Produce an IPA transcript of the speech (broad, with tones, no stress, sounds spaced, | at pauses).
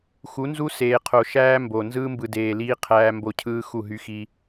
x u˨˦ n z u˦ s eː˨ qʰ o˨ ʃ æː˦ m b o˨ n z ɯː˦ m b ɯ˨ d eː˨ l iː˦ qʰ æː˦ m b o˦ cʰ ɯː˦ x u˦˨ ɦ y˦ x i˦